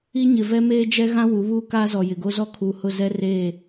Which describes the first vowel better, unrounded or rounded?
unrounded